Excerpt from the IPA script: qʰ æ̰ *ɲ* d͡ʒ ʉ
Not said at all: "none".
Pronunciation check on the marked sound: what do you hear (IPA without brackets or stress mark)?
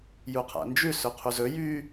n